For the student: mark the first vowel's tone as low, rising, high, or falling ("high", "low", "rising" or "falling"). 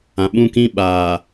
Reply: low